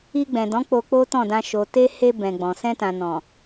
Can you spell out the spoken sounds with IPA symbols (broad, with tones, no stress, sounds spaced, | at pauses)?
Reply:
i˧ ɡ͡b ɛ̃˨ d ɔ̃˨˦ k͡p o˧ k͡p o˦ t ɔ̃˦˨ d ã˧ ʃ o˨ t e˧ h e˧ b ɛ̃˨ ɡ͡b ɔ̃˨ s ɛ̃˧ t ã˨ n ɔ̃˨